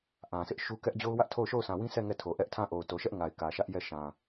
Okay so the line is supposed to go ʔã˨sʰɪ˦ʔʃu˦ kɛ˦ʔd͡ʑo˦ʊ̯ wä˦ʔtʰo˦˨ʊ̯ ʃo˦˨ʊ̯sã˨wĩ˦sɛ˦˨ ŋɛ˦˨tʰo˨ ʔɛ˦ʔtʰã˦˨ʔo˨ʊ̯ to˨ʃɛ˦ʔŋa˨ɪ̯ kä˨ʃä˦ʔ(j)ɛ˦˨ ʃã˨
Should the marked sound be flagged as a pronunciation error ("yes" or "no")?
no